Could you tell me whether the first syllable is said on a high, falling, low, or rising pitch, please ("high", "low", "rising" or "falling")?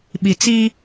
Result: low